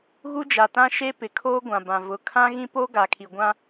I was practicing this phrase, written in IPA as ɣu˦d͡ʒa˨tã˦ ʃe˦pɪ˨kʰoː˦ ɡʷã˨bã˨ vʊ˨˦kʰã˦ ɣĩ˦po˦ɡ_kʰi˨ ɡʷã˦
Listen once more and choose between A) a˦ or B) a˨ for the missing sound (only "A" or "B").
B